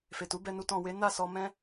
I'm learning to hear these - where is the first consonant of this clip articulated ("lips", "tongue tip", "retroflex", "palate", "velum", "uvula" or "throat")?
lips